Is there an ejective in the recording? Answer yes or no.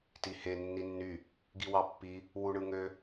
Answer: no